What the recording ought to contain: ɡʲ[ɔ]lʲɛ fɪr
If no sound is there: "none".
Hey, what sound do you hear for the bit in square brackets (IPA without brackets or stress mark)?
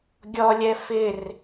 ɔ